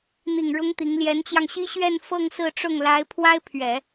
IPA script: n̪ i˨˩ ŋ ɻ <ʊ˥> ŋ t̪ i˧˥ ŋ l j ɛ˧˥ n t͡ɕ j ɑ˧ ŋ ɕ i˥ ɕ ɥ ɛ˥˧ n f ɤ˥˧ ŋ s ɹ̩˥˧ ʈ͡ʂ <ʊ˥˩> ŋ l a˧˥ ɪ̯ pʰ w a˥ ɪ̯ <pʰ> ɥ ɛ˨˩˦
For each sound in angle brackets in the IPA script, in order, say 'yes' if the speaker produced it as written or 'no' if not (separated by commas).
yes, yes, yes